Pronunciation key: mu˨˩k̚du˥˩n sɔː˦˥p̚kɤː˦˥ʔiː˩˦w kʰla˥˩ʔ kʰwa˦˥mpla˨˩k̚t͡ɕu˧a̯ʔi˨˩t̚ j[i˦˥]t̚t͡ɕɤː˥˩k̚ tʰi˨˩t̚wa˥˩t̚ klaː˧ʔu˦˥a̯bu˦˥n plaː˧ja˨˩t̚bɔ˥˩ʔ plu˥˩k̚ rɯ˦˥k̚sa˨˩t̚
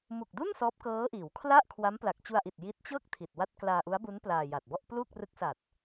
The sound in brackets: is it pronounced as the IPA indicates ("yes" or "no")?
yes